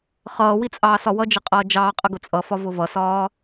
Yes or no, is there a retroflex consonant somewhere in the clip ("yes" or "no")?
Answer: no